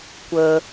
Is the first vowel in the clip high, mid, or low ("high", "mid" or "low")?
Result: mid